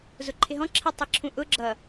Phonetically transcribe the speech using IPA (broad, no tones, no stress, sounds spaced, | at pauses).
z ʊ ǃʰ ɪ ɦ ɔ̃ ǁʰ ɛ tˤ i ǁʰ ũ ʔ ʊ ɡ͡ǁ ʌ